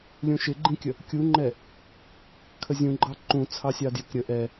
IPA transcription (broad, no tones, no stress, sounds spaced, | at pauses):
lʲ ũ ʃ ɪ ɡ͡ǃ ĩ kʲ ə | kʲ u ŋ͡ǃ ɛ | kʰ ə zʲ ũ ɡ͡ǃ ɑ ǃ ũ t͡sʰ ɑ sʲ ɑ d j ɪ k ɾʲ ə ʔ ɛ